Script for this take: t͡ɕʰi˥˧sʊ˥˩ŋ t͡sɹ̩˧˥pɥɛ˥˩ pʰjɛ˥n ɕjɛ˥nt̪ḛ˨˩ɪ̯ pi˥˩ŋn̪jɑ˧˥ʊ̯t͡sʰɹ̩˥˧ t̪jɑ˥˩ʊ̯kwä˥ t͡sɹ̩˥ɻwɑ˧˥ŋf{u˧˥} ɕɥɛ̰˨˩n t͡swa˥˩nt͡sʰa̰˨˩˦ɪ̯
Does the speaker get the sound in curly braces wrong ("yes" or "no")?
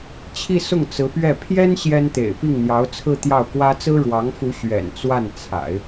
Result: no